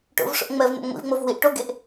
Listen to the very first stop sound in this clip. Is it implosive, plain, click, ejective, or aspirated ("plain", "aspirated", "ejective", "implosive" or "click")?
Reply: plain